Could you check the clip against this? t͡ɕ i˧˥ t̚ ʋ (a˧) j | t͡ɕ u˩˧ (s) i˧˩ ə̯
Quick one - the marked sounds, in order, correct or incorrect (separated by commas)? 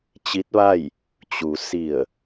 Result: incorrect, correct